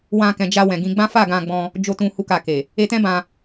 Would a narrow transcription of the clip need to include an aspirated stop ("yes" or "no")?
no